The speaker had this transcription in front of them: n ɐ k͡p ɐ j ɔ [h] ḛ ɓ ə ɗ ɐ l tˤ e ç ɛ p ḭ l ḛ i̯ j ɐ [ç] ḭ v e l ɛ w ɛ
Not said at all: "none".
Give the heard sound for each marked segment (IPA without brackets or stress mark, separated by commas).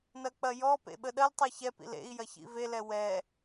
p, ç